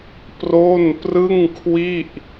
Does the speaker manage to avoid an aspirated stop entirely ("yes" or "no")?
no